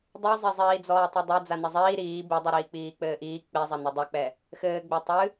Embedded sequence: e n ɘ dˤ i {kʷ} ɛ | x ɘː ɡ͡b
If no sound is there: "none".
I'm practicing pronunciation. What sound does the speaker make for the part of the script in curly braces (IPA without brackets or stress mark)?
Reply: k͡p